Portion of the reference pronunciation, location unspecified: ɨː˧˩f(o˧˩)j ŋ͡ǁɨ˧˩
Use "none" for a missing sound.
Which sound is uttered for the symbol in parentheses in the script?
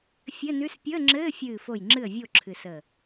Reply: o˧˩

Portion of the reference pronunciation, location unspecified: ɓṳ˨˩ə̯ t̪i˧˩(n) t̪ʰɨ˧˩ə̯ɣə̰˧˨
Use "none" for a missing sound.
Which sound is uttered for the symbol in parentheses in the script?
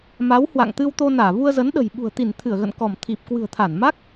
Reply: n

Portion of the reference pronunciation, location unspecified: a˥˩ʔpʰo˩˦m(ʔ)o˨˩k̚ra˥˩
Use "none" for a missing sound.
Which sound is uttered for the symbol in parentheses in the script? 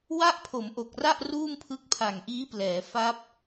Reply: ʔ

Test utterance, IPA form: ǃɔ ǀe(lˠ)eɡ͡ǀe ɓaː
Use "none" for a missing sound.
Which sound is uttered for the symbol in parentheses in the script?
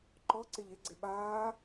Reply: ʎ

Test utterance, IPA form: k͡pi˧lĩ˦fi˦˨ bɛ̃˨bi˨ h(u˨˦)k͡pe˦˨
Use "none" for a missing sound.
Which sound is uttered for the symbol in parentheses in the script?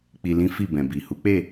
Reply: u˨˦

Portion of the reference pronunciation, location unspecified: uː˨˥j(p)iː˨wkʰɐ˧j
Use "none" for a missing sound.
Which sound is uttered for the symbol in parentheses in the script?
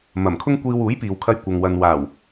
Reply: p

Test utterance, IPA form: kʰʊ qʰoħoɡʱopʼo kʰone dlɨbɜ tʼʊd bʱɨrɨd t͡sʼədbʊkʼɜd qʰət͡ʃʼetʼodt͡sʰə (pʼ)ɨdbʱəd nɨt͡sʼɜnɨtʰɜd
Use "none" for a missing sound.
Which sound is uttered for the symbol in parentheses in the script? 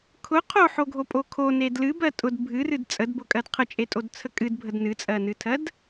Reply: kʼ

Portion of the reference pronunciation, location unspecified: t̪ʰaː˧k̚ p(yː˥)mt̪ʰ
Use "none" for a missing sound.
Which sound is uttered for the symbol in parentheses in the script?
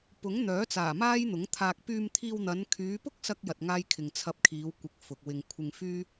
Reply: yː˧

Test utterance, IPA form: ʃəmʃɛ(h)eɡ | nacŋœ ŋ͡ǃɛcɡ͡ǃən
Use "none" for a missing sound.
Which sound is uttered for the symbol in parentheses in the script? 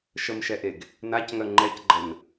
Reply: ʔ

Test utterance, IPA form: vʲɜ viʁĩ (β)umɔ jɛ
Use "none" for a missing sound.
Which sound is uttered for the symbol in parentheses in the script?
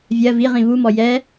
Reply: β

